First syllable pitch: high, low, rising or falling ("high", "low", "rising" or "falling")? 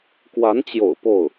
rising